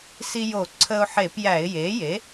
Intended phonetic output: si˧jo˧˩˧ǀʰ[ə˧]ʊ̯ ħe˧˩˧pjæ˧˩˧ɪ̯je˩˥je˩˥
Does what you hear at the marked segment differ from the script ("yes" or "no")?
no